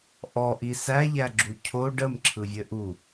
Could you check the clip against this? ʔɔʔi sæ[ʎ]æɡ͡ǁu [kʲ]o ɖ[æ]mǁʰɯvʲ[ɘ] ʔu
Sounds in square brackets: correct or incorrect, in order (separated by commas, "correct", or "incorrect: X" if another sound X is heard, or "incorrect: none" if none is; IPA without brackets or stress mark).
correct, incorrect: cʰ, incorrect: ə, correct